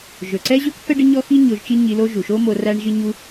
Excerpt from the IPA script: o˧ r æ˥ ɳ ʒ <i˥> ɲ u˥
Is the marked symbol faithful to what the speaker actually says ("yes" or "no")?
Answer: yes